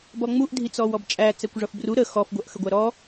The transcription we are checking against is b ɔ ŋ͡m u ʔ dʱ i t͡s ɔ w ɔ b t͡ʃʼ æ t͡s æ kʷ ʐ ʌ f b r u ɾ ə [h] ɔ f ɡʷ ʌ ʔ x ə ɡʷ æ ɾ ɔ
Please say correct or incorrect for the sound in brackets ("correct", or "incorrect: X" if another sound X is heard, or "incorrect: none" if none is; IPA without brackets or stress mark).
incorrect: x